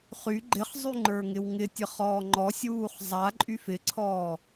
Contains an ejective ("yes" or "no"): yes